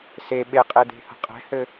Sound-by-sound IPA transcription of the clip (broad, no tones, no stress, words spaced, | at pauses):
se ɓeqʼed̪e̤hə̤ qʼɛ̤hɘ